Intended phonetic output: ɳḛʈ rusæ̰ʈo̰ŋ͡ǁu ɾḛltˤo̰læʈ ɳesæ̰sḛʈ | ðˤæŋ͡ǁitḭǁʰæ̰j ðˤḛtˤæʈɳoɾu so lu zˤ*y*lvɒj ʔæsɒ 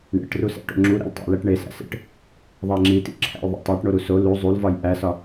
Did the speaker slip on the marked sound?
yes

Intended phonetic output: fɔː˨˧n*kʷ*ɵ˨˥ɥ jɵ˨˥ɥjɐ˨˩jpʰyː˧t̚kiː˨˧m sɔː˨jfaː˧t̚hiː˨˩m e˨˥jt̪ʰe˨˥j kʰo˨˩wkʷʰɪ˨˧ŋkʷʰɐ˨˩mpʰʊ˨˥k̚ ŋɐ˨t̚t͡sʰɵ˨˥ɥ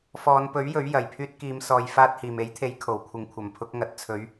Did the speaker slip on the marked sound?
yes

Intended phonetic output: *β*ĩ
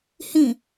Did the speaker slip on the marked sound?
yes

